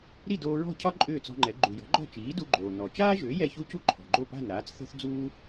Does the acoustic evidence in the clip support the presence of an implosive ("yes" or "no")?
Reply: no